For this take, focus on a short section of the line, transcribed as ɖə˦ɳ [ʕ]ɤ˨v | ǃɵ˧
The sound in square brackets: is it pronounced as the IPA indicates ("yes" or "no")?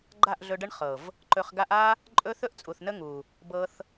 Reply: no